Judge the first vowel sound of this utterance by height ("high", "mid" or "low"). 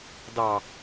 low